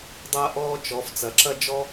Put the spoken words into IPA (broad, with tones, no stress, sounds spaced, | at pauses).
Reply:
dˤ ɐː˥ ʔ ɔː˥ t͡ʃ ɔ˨˦ f t͡s ɐ˨˦ ǁ ɐ˥ d͡ʒ ɔ˥